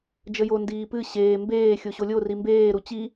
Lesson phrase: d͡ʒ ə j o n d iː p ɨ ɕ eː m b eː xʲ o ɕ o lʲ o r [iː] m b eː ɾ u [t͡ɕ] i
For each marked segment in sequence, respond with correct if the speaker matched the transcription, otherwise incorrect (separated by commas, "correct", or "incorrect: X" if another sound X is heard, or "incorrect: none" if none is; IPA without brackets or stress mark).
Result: incorrect: i, correct